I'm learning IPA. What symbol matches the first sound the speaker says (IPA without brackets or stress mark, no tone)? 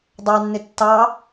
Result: dˤ